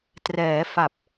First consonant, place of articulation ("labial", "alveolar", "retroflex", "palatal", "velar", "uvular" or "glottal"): alveolar